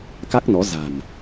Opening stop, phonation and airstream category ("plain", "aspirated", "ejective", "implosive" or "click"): plain